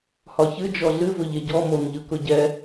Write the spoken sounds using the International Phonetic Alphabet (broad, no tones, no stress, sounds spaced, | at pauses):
h ɒ ç ɨ d͡ʒ ɔ ɮ ɨ v ʊ ʎ e ɟ ɔ m o n ʎ ɯ k ʊ ɟ ɛ